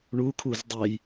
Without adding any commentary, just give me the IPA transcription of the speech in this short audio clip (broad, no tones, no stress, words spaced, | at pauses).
ɳukʰuz dˤej